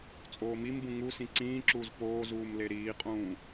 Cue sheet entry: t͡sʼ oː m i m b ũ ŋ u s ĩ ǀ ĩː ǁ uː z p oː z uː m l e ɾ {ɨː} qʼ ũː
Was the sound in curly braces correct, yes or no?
no